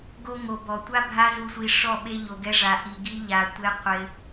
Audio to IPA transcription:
ɡ o˧ ŋ o˨ b ɔ˨ tʷ a˦ bʱ a˦ z u˧ sʷ i˧ ʂ ɔ˦˨ ɓ e˦ ʎ o˧ ɡ ɛ˦ ʐ a˧ ʔ i˧ ɡ i˦ ʎ a˧ tʷ e˦ qʷ ɪ˧

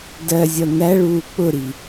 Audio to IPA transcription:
d ɜ zʲ ʌ n̪ æ ɭ uː k͡p ʊ ɾ i

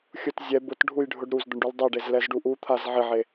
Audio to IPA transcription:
xʲ ʊ t zʲ ɛ b ʊ t ɖʱ u j ɖʱ ʊ ɖ ɾ u z d̪ ʊ ɳ ɖ u l dˤ ɛ ɖ e z l ɛ z ɖ u ʔ u t̪ʰ a z ʕ ɪ ʕ e

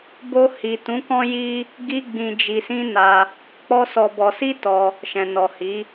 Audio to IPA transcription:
b o˧ h i˨ t ũ˨˦ k ɔ̃˦ j i˦ | ɡ i˦ ɡ͡b ĩ˧ d͡ʒ i˧ s ĩ˦ n a˧ | k͡p ɔ˦ s ɔ˧ b ɔ˧ s i˦ t ɔ˧ | ʃ ɛ̃˨ n ɔ˨ h i˨˦

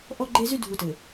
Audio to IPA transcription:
ʔ ɔ˦ ɡ͡ǃ e˦ z y˦ dʱ u˨ t ɘ˨

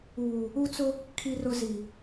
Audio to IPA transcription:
uː˨ | u˦ t͡s ʊ˦ | kʰ i˨ r ʊ˨ z i˨

